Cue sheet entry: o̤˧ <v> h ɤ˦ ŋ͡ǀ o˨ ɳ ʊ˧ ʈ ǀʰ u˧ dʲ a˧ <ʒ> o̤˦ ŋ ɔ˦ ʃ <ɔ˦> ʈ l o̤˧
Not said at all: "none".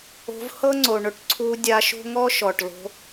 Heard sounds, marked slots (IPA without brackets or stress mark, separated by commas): v, ʃ, ɔ˨